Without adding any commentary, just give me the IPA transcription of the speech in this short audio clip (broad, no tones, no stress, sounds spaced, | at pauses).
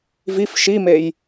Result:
v i f ʃ i m e j